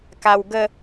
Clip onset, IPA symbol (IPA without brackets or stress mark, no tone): k